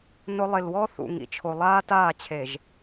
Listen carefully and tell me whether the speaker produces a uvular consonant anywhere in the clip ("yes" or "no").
no